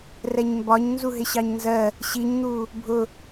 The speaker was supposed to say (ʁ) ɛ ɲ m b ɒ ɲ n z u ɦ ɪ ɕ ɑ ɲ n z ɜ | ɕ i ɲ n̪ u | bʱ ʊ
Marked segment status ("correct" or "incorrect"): incorrect